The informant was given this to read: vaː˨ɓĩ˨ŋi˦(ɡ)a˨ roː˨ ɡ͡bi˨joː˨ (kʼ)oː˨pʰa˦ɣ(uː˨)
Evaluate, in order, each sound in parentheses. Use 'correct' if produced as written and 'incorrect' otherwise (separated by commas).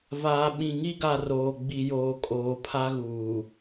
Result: correct, correct, correct